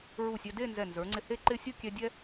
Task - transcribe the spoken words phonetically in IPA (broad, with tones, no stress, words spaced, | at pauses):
ɹu˧˩sʲɛ˧de˥˧ nzɛ˧˩nzə˞˩˧ŋ͡ǀɪ˧ he˥˧ǃɪ˥˧ sʲʊ˥˧kʲɛ˧ dʲɛ˥